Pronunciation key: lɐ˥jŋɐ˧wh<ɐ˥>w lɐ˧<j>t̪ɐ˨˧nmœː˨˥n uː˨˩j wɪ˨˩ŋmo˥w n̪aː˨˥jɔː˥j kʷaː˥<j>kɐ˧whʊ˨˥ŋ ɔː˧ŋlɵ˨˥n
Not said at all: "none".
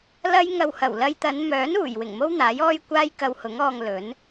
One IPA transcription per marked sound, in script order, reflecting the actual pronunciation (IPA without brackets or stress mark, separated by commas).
ɐ˨˩, j, j